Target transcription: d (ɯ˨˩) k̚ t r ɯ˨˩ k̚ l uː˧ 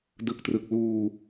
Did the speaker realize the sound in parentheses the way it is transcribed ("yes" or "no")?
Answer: yes